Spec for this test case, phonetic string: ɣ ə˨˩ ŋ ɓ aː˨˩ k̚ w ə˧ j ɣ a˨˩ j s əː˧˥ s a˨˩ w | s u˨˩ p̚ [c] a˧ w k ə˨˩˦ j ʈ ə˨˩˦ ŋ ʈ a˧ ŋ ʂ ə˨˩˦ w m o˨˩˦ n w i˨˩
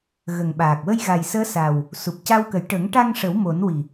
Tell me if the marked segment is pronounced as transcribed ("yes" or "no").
yes